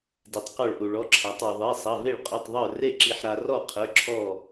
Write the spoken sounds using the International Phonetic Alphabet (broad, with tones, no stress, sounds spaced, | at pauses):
d i˧ tˤ q ɔ˥˨ ɭ ʔ u˧ ɭ ɔ˧˥˧ ǁʰ a˨˥ tˤ ə˞˧ ðˤ e˧˥˧ sˤ ɐ˧˥˧ v e˥˨ ɭ qʼ o˧˥˧ tˤ ðˤ ə˞˥˨ r e˥˨ ǁ i˧ ħ ɾ a˧ r ɔ˥˨ qʰ ə˞˧˥˧ ǁʰ ɔ˥˨